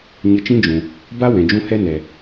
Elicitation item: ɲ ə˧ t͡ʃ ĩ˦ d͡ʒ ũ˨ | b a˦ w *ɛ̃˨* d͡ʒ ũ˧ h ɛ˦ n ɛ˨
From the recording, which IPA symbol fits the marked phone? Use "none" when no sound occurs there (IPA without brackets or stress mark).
ɛ̃˨